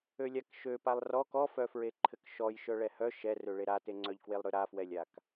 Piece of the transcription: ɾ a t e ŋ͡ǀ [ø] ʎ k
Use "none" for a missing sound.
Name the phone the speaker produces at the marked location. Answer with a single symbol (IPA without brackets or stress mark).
œ